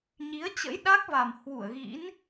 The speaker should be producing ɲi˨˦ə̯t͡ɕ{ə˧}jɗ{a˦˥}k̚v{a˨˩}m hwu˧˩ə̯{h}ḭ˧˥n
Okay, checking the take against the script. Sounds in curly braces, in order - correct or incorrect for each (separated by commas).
incorrect, correct, correct, incorrect